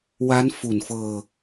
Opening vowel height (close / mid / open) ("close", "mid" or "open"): open